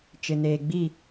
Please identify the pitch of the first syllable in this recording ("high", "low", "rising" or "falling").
low